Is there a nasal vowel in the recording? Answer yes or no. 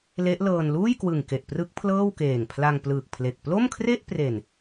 no